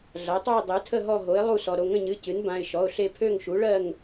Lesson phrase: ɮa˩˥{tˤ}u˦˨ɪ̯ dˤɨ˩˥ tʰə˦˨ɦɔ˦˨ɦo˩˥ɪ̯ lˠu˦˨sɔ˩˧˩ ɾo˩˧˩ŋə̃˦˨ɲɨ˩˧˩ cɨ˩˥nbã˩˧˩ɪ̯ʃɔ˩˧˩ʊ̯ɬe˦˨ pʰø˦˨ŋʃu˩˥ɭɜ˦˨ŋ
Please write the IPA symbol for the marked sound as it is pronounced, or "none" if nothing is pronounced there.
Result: tˤ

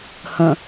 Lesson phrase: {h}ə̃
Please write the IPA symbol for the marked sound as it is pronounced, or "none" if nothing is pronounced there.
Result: h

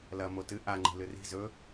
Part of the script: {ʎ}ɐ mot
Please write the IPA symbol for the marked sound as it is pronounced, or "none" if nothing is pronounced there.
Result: l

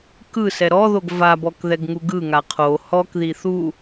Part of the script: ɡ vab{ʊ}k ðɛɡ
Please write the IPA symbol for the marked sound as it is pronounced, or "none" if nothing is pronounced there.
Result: ɔ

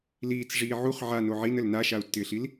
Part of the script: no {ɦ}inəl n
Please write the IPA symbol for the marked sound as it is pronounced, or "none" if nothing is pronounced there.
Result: ʕ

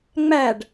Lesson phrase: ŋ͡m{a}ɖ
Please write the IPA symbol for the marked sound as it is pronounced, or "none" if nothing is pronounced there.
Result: æ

